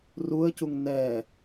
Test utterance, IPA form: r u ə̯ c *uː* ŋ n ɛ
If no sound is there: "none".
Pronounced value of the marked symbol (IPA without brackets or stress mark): u